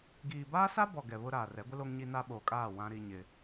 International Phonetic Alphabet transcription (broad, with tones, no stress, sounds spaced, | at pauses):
ɡ iː˨ b aː˦ s a˦ b ɔ˨ ɡ ɛ˨ β ʊ˦ ɾ aː˨ r ɛ˨˦ ɡʷ ɪ˦ l o˦ ŋ ɲ i˦ n a˦ ɓ oː˨ kʼ aː˦˨ w ã˦ ɾ i˦ ɲ ɪ˦